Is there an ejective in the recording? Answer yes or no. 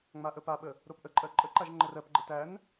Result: yes